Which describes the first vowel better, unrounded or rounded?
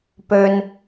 rounded